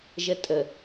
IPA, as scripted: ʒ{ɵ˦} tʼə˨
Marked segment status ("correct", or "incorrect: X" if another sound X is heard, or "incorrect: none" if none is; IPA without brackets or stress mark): incorrect: ə˦